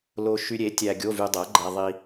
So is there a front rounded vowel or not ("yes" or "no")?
yes